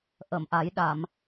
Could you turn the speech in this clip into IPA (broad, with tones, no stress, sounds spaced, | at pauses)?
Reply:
ʔ ə˨˩˨ m ʔ a˨˩˦ j ɗ a˨˩˨ m